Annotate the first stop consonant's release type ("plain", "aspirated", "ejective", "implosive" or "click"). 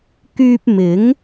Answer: plain